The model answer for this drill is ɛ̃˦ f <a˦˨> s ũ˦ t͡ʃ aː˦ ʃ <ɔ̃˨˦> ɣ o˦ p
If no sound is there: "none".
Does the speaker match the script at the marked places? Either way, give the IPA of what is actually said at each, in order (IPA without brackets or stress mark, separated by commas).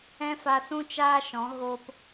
a˧, ɔ̃˨˦